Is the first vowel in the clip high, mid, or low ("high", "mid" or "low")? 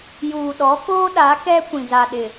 high